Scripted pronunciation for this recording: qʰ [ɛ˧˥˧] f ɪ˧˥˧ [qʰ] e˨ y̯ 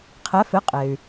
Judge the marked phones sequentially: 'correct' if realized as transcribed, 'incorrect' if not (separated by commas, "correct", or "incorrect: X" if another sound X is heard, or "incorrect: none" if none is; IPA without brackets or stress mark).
correct, incorrect: qʼ